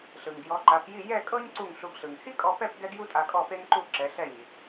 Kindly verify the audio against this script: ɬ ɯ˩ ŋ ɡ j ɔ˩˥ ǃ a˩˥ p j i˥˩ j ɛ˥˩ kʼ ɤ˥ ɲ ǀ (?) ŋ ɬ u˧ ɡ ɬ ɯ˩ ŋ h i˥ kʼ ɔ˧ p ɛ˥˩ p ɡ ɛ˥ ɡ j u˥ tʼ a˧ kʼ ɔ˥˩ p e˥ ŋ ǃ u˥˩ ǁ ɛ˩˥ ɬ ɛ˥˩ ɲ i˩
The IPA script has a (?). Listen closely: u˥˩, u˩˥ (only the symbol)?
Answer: u˥˩